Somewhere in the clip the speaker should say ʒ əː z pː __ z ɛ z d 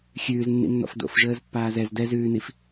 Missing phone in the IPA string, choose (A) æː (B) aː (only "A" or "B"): B